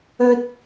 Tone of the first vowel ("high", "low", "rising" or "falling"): high